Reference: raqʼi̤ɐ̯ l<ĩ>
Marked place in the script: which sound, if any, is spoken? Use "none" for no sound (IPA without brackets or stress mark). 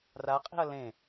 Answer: ẽ